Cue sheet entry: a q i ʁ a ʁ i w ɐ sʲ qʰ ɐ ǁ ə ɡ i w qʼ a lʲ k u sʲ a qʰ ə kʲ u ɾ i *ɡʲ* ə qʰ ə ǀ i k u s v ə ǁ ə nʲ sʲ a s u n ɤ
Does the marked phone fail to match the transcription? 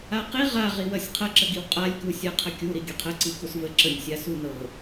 no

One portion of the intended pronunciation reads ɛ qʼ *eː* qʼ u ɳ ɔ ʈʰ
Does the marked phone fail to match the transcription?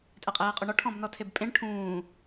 no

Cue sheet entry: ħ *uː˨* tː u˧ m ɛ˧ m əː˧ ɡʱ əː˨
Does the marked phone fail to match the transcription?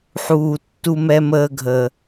no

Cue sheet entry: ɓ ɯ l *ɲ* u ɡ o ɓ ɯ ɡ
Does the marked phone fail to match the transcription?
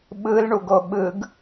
yes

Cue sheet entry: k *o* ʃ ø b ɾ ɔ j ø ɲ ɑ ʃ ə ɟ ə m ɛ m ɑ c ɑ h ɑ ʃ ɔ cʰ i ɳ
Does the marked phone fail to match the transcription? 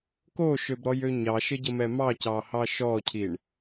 no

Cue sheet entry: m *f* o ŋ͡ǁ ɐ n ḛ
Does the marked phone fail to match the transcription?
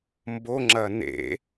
yes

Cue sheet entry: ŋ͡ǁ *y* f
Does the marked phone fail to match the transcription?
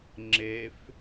yes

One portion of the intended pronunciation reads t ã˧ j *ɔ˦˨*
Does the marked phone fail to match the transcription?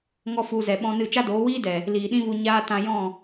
yes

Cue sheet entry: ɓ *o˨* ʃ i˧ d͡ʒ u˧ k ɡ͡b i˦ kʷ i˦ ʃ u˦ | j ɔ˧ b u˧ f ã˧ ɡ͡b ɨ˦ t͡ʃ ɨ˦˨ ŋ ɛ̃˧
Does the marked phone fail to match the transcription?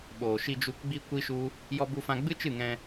yes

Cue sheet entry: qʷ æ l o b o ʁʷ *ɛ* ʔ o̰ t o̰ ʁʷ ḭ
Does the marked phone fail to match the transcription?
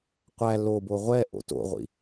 no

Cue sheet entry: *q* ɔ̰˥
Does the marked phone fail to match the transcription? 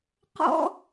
no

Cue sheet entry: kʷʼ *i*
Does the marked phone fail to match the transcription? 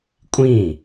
yes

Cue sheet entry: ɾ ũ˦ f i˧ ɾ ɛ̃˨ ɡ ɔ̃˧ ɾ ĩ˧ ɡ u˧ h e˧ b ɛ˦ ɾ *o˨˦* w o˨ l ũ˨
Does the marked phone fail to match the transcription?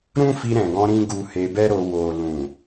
yes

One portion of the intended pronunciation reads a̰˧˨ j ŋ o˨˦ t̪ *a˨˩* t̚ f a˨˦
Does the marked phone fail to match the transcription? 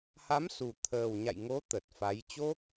yes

